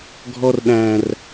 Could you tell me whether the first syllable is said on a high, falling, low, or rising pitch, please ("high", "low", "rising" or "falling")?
high